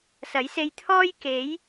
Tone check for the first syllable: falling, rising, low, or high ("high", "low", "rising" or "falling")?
rising